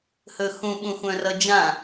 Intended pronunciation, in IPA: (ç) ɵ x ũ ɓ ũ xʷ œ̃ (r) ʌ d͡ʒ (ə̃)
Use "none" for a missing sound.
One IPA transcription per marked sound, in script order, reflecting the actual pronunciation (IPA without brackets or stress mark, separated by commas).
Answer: h, r, ã